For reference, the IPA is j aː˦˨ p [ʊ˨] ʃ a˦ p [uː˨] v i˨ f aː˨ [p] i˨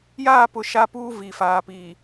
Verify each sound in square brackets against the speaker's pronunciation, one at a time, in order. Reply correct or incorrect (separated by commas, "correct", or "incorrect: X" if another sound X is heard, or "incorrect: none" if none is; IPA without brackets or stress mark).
correct, incorrect: uː˦, correct